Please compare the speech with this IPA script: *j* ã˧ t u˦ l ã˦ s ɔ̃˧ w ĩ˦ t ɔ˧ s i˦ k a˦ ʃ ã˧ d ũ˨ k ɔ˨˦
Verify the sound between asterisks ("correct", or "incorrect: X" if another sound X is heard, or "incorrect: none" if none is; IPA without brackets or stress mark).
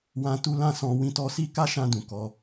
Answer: incorrect: w